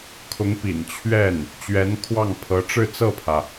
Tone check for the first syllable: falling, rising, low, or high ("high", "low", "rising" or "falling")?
rising